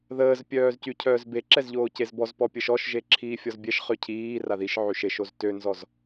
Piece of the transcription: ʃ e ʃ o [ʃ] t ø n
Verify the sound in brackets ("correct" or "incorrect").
incorrect